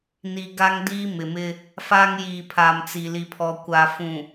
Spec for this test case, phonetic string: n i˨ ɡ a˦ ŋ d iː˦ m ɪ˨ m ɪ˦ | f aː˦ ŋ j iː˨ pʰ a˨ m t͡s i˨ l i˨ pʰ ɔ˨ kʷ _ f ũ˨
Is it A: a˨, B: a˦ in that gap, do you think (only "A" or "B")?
A